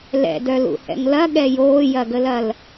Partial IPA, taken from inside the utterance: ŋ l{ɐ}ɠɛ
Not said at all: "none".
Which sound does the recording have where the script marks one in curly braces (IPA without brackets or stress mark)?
ɐ